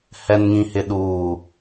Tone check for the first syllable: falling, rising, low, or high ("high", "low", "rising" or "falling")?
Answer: low